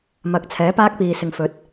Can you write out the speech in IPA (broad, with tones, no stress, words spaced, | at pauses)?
mɐ˨˥k̚t͡sʰɛː˨˥paː˥k̚piː˨ sɪ˨ŋfɵ˨˥t̚